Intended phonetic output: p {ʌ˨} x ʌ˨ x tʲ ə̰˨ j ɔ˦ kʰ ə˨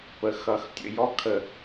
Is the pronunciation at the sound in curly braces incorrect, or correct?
incorrect